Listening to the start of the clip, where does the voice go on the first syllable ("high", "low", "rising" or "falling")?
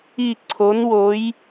falling